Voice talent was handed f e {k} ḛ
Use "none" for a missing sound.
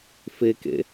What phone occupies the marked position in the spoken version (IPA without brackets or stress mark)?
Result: k